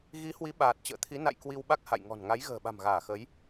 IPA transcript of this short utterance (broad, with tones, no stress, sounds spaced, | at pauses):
ɣ i˨˦ h w i˨˦ ɓ aː˨˩ t̚ t͡ɕ ə̰ː˧˨ t̪ʰ i˨˦ n a̰˧˨ j k w i˧ w ɓ a˦˥ k̚ h a̰˧˨ j ŋ ɔ̤˨˩ n ŋ a˨˦ j ɣ ə̤ː˨˩ ɓ a̤˨˩ m ɣ aː˧˩ x ə˨˦ j